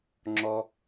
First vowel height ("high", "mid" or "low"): mid